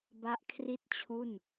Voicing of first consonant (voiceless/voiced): voiced